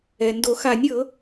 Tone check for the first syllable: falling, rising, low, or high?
low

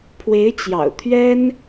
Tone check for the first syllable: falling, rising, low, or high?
rising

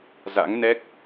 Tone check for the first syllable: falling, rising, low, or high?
rising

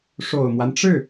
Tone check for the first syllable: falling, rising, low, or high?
low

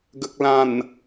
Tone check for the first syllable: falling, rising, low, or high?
low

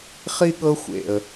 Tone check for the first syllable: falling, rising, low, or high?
high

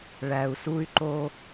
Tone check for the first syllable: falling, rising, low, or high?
low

